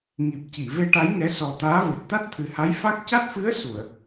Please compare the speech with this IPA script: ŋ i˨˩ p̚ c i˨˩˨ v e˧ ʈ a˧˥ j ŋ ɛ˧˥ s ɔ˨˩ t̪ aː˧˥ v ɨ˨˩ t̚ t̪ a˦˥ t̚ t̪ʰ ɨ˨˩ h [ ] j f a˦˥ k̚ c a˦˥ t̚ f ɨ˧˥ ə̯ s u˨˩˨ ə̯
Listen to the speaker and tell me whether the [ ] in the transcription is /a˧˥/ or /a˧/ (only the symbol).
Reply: a˧˥